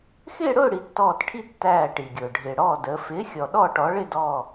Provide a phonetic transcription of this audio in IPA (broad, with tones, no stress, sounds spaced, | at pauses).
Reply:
x ɪː˥˨ ɽ ʊː˥˨ ɽ i˩˧ tː ɔː˧˩ t ʈʰ i˥˨ tː æː˧˩ ʈ i˩ ɡʲ ʊː˩ ɖʱ ɪː˩ ɽ ɔː˧˩ d əː˩˧ f ɪː˩˥ xʲ ɔ˩ ɗ ɔː˥˨ ʈ ɔ˩˥ ɭ ɪ˥˨ d ɔː˧˩